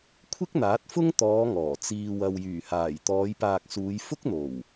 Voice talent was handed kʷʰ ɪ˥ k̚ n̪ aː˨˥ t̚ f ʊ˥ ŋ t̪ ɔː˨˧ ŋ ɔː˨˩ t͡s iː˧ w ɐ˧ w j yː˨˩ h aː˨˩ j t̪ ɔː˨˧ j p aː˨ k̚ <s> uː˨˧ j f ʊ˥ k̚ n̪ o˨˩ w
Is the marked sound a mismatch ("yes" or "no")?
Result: no